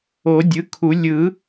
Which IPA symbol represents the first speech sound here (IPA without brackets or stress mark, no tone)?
o